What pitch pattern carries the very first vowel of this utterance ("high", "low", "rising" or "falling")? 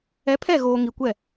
rising